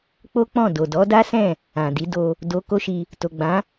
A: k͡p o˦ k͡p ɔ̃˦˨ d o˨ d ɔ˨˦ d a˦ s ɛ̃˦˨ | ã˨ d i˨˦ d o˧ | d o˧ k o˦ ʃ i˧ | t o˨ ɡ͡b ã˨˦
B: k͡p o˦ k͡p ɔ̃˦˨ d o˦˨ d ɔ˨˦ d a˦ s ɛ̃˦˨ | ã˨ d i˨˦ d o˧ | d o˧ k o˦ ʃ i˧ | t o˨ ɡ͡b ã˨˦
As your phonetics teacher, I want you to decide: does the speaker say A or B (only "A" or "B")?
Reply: A